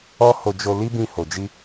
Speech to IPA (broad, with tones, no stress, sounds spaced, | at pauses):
ɔ˦ h o˧ d͡ʒ o˧ l i˦ b ĩ˧ h o˨ d͡ʒ i˧